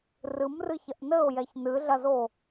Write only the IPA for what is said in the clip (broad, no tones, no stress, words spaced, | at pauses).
rɨmrɨçɐʔ nɘʊ̯jɛç nɨɮɐzo